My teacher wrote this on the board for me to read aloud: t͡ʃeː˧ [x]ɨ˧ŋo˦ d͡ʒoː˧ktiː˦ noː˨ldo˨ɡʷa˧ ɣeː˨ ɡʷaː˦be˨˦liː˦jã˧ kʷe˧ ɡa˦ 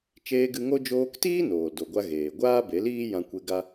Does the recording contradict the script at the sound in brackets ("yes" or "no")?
yes